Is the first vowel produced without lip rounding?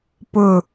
no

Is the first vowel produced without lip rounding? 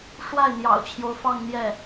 yes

